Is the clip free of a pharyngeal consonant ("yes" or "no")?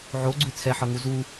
no